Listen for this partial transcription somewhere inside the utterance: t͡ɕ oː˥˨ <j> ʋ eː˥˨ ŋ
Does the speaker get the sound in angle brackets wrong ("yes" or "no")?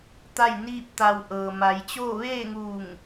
yes